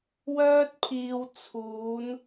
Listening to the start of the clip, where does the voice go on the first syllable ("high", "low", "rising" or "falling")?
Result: high